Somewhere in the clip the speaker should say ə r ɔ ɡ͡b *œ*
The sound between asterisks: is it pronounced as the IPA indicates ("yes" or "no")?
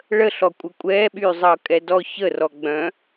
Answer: no